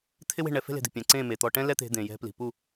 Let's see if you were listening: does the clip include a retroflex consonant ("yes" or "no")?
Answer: yes